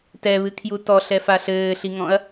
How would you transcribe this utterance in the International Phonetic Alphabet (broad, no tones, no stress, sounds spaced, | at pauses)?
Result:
t ɛ β ɨ kʰ j u t ɔ ɬ ɛ f a ɬ ɘː ɬ i ŋ ɔ̃ ɐ̯